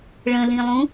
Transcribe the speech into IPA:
ɭ ə̃ l ĩ lˠ ũ

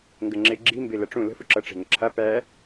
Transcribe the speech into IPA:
ŋ ɡ ə ŋ͡ǁ e ɡ͡ǁ i m b e l ɐ ʈ͡ʂ ũ l ə̤ f u ǁ ʌ ʈ͡ʂ e̤ ŋ ə ǁʰ a p æ

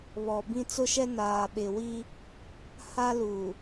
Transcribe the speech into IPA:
β ɔ˨ b ĩ˦ t͡s ʊ˦ ʃ ɛ˦ n aː˨ ɓ ɪ˨ w i˦ | h a˦ l u˨

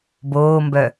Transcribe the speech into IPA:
b oː m b œ

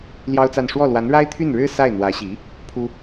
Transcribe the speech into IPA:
l j ɑ˥ ʊ̯ t͡s a˥˧ n ʂ w ɔ˥˩ l w a˧˥ n ɻ a˥ ɪ̯ t̪ʰ y˥˩ n ɻ ɻ̩˥ s a˥˩ ɪ̯ n̪ w ä˧˥ ɕ i˧˥ | pʰ u˥

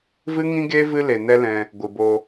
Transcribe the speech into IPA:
v ɨ˦ ŋ ĩ˦ ɡ eː˦ v ɨ˦ l e˨ n ɛ˦ l ɛ̃˧ | ɡʷ ɨ˨ b o˧

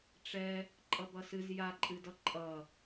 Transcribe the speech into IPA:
ʈ͡ʂ ɛ | ǃʼ ʌ b ʌ s ɨ z j a ǃʼ ɨ d ʌ ǃʼ ʌ

